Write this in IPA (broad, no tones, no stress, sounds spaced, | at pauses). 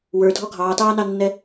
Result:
w ə˞ dʱ ɔ ɡʱ ɑː t ɑː n ɑ nː ɛ